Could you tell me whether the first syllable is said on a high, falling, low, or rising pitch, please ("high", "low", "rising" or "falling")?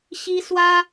high